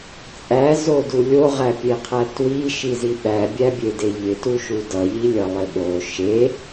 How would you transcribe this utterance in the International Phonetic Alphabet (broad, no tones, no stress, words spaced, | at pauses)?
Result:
t͡sʼæzodu lʲoʁæpʲeqʰæ twiʃizi ɓæbʲæbʲede ʎɪtuʃu dʌʎilʲʌlˠɪ ɓo ʃe